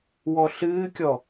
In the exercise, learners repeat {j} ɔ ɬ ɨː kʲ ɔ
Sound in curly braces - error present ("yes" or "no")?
yes